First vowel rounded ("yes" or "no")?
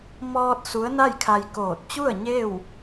yes